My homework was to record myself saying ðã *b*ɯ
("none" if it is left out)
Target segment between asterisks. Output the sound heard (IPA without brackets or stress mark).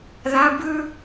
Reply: b